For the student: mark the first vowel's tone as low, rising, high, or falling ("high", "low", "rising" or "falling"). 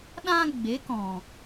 high